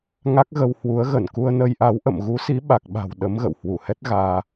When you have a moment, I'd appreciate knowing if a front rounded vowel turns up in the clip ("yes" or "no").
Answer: no